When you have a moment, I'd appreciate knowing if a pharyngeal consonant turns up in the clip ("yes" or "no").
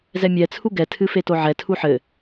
yes